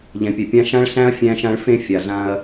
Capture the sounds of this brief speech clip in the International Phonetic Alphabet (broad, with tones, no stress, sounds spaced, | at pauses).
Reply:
ʎ ɛ̃˨ pʲ ɛ˨ pʲ ã˦ ʃ ã˦ ɭ ɬ æ̃˦ ɐ̯ fʲ æ̃˦ ʃ ã˦ ɭ f ẽ˦ fʲ a˨ ɮ ã˦ ɐ̯